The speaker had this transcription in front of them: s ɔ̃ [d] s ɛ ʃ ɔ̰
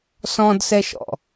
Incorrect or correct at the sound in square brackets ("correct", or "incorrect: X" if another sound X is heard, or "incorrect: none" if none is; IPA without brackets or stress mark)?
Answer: correct